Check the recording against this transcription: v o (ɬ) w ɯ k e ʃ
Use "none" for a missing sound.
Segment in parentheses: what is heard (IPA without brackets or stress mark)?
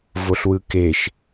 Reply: ɬ